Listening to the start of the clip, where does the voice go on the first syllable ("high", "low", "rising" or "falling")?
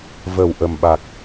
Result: low